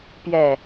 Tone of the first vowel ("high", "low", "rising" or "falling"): low